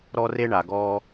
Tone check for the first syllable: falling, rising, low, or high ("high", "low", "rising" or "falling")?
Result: high